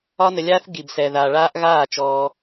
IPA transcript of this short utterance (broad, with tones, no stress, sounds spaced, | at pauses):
ɒ˦ n ə˧ lʲ aː˦ θ ɡ i˨ b s ɛ˨ ð a˨ ɭ aː˧ ʔ ɣ aː˦˨ t͡ʃ ɔː˧